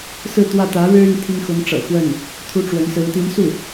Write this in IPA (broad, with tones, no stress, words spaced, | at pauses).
sɹ̩˥˧t̪wä˥˩ t̪ä˧˥ɻɻ̩˥y˨n t̪ʰi˥ŋxʊ˧˥ŋʈ͡ʂɤ̰˨˩xwə˥˩n | t̪ʰu˥ʈ͡ʂwə˧˥nsɹ̩˧˥ t̪i˧˥nsu˥˩